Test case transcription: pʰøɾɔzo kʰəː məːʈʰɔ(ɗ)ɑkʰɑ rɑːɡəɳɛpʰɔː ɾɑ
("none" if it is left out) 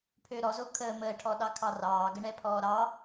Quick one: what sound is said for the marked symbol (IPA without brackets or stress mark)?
ɗ